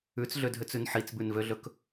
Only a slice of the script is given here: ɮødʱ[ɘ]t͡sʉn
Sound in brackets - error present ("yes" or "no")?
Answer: yes